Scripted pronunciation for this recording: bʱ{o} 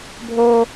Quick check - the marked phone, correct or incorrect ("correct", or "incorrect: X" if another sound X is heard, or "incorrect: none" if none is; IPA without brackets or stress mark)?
correct